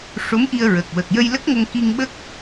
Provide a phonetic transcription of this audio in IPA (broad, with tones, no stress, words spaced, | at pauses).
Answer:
ʂo˧˥mʔi˧ə̯ɹə˨˩k̚ wə˨˩k̚jə˧jlə˦˥k̚ŋə˧ŋ ki˧ŋɓə˦˥k̚